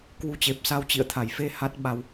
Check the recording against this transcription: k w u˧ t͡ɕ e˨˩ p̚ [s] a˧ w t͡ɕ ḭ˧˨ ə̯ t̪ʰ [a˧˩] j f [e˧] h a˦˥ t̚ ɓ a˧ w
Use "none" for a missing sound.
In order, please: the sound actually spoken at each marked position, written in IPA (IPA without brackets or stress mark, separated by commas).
s, a˧˩, e˧